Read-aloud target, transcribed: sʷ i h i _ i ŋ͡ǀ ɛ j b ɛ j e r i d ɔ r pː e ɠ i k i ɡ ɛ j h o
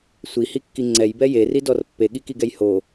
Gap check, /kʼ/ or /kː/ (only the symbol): kː